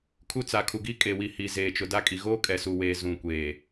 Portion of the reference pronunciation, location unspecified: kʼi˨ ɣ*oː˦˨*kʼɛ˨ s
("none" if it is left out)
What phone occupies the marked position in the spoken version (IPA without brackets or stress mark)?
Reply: oː˦